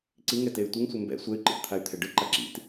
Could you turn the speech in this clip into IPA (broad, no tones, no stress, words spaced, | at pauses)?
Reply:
ǀiŋɛtey̯ tʷeŋsʷɛ mbɛ̰ sʷɛy̯ǃḭtt̪ʰay̯t̪ʰɛ ɖɯǃa ǁḭt